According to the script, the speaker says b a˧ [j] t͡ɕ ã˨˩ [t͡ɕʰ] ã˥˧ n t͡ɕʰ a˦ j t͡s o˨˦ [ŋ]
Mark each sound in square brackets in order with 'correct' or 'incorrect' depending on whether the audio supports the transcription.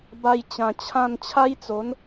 correct, correct, incorrect: n

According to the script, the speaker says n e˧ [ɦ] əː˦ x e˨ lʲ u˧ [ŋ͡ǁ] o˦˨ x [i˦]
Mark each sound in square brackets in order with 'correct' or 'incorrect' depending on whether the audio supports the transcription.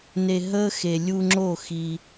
correct, correct, correct

